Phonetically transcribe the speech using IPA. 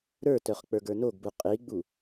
ɾə˞tœχ k͡pə˞ɡə˞noɡbu qʼiɡ͡bu

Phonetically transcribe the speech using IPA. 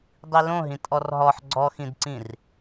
dˤilõɦĩ tʼɔrɦɔħ ɡ͡ǀɔxĩdǀĩr

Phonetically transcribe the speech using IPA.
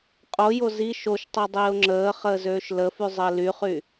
qʼojo zi ʃoʃtˤi dˤiːʊ̯ŋ͡ǁəːχəː zøːʃləfy zˤəːlyχy

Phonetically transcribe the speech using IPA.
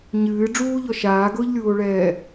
ɲɨː ɖ͡ʐuːʎɔ ʃaːɡʊːʎlʲuːo̯ɭɛː

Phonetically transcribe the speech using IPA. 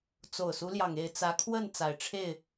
t͡so˨˩ʊ̯su˦ljɑ˩ŋe˥˨ɪ̯ t͡sä˨˦kʰwə˥˨n t͡sa˨˩ɪ̯ʈ͡ʂʰe˥˨ɪ̯

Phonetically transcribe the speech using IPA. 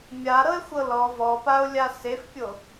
mʲaɾɤe̯xʷɤ lɔ vɔpao̯lʲa sefpʲo

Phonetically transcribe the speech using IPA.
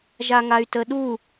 ʒaŋay̯təɗu

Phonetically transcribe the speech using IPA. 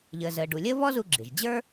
ʎəː˩zəː˩ɖu˩lʲəː˥ βɔ˥zu˧ɡ͡ǁɪ˩ʒ d͡ʑə˞˥

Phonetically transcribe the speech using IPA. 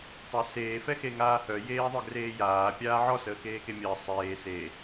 tˤœseː fɛxeŋaːhœ jeːðˤœɡreːjaː pʲaːʕɔ səːkeːkemʲəː sˤeː se

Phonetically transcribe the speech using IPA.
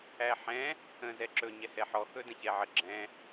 æħɛ̃ | ə̃ zɛǁɵ ɲɛhɛħɔ xɵdə̃çɛʕə ɡ͡ǁɛ̃

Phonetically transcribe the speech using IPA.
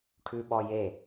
ʈʰʉɓɔje

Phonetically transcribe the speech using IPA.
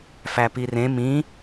fæpirẽ mĩ

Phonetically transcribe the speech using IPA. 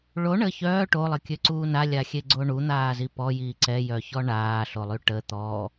ɭo ɳə çœː ʈolˠəkʲøǀuː nalʲaxʲeɡ͡ǀo ɳun̪aːzi pɔjiː ǀɛjœçɔ ɳaːɬolˠy ʈə t̪ɔ

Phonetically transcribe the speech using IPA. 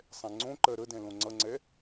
sˤɛ̃ŋ͡ǀõǃɜ ɾədɛ̃ lõŋ͡ǀʌŋ͡ǀɛ

